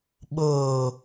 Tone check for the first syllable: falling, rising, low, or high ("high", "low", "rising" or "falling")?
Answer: low